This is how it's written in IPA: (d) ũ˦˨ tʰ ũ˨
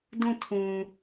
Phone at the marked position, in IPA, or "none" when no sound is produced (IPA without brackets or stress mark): d